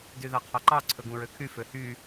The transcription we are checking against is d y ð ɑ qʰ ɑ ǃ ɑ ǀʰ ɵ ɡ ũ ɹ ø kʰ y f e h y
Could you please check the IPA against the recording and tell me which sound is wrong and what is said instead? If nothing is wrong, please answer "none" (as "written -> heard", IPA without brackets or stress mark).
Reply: e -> ø